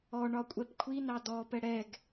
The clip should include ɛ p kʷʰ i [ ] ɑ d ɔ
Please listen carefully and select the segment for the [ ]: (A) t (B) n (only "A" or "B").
B